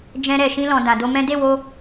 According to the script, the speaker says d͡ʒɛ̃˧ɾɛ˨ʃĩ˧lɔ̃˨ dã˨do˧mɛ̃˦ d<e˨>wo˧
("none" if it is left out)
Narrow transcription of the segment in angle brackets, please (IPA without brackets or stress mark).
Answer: e˦˨